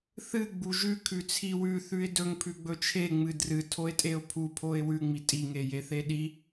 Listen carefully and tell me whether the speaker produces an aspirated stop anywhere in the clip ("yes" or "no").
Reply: yes